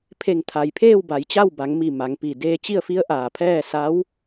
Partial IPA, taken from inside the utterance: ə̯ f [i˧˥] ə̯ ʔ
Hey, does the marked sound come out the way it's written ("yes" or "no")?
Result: yes